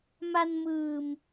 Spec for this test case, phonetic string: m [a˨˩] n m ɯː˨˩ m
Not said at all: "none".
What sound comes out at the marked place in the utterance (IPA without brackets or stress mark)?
a˧